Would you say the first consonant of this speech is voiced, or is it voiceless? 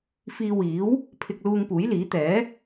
voiceless